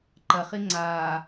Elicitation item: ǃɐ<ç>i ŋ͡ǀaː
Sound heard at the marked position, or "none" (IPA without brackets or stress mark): χ